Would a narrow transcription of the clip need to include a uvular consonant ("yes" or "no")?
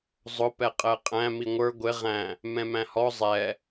yes